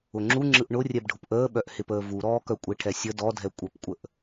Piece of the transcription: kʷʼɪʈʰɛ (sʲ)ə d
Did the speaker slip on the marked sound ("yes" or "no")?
no